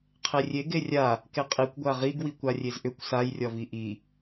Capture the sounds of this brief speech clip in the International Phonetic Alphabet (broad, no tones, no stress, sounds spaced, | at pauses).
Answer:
qʰ e rʲ e ɡ e rʲ a | k e qʼ i kʷ ɡʷ a ʁ i ɡ w i kʷ a rʲ e z ʔ ʏ kʷ s a j rʲ ɒ v i ʔ i